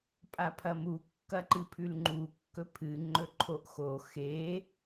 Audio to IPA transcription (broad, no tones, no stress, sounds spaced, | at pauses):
pʼ a pʰ ɐ m u kː ɐ ǃ ɨ pʰ ʉ l ŋ͡ǃ u kː ɵ pʰ ɨ ŋ͡ǃ ɵ ǃʰ o ʔ x o x e